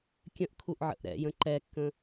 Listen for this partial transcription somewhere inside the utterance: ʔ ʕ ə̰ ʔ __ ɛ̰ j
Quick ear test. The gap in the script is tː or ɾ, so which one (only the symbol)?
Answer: ɾ